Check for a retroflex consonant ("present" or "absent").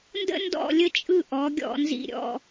absent